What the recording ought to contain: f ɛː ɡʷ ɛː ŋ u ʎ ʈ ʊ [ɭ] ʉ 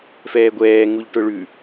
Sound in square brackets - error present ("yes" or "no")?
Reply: no